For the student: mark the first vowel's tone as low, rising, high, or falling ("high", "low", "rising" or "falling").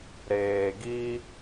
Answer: low